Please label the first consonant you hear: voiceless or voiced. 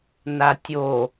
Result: voiced